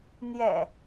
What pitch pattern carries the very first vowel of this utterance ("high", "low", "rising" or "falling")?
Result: low